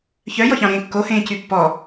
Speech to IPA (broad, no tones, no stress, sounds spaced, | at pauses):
ç œ j ɔ ç ɑ̃ ɾ ẽː kː o h ẽː c y pː ɔ